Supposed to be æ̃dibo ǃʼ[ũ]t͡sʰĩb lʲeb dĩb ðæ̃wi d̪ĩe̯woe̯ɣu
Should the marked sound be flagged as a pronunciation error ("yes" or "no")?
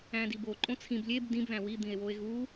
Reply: yes